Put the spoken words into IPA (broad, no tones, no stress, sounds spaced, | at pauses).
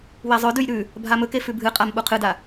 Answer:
w e zˤ ɵ d ʉ j ɾ ʉ | bʱ a m ɵ k e f ʉ bʱ ɨ qʼ a m ɓ u qʰ ɨ d a